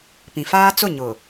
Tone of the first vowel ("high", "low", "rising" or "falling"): low